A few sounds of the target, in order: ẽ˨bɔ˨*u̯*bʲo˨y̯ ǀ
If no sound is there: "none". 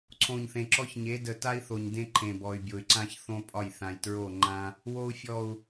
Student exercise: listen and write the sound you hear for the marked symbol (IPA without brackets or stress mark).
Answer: y̯